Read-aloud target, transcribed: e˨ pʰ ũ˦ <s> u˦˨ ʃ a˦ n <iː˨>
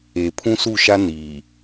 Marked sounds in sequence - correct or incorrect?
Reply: correct, correct

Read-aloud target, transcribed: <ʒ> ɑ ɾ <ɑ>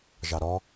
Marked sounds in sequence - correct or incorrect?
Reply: correct, incorrect

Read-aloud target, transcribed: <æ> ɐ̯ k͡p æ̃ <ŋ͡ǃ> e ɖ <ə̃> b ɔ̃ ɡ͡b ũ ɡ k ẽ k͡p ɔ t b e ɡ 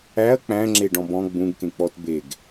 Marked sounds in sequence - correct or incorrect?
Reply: correct, incorrect, incorrect

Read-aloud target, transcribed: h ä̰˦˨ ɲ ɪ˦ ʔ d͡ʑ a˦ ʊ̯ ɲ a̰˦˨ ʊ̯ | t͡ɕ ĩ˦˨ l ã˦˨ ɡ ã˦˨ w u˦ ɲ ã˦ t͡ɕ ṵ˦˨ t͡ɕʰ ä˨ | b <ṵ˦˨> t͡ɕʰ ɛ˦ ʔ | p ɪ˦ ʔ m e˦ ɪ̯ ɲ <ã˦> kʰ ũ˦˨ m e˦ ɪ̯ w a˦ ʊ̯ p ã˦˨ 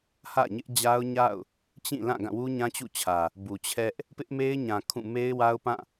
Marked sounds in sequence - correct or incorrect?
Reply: incorrect, incorrect

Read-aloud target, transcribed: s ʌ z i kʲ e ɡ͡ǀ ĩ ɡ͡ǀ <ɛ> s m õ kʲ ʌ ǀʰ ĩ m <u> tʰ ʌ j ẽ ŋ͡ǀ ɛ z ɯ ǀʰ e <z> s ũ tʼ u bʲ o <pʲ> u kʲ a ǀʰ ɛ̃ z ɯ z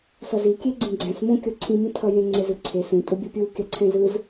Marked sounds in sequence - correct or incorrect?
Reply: incorrect, incorrect, incorrect, correct

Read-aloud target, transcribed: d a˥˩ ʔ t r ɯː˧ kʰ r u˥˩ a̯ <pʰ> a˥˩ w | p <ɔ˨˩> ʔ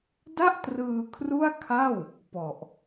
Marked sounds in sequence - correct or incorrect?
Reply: incorrect, correct

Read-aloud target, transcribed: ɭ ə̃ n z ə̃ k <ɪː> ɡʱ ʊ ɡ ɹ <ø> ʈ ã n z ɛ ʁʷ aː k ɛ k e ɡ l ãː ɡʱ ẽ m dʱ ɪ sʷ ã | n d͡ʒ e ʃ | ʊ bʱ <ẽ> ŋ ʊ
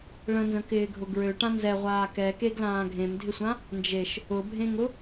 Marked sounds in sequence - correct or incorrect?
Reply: correct, correct, correct

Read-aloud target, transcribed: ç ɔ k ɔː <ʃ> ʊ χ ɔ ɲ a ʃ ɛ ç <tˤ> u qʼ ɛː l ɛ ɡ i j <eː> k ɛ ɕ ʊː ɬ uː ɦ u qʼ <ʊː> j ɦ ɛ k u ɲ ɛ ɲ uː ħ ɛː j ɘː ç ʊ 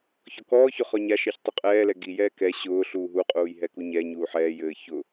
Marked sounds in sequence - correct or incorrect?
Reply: incorrect, correct, incorrect, incorrect

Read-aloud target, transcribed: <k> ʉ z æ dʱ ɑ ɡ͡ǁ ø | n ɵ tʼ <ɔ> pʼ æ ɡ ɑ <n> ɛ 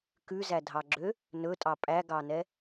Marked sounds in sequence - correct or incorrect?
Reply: correct, incorrect, correct

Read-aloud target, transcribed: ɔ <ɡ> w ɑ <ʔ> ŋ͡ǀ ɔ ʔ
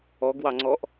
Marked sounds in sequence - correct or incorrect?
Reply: correct, incorrect

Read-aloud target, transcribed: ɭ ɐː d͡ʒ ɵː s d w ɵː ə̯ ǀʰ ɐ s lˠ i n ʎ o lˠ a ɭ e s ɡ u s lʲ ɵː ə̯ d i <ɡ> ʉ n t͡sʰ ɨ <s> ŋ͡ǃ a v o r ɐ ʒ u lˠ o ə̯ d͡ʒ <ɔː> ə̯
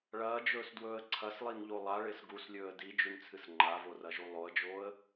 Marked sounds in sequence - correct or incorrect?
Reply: incorrect, correct, incorrect

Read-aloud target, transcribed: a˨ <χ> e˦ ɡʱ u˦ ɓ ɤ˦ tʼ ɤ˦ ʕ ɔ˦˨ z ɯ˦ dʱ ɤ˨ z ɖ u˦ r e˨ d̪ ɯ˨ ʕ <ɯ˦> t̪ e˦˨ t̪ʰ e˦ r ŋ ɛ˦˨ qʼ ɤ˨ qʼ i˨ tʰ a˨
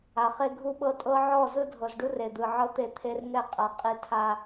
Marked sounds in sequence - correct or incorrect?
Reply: correct, incorrect

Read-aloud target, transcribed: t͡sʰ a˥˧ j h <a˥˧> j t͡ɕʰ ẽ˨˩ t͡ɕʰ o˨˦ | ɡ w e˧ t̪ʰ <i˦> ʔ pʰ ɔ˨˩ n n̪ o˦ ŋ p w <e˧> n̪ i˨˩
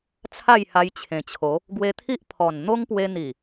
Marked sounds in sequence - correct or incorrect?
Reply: incorrect, correct, correct

